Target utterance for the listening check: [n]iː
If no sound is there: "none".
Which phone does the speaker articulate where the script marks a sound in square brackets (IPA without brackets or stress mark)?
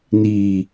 n